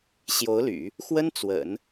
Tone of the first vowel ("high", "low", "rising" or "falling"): rising